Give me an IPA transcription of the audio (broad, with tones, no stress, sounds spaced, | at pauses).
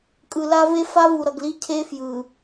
kʼ ɯ˨ l a˦ v e˦ f a˦ v u˨ ɾ ʌ˨ ɡ l i˦ cʰ e˦ f j ɯ˨